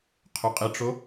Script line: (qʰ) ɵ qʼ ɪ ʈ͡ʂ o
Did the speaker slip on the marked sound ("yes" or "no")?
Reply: no